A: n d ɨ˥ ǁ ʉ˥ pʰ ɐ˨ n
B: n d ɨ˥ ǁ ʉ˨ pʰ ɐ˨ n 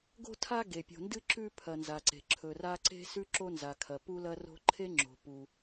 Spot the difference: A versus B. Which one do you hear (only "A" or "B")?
A